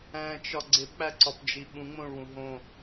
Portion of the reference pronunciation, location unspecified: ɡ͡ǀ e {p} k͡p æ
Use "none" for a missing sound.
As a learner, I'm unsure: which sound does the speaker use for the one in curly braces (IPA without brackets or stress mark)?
p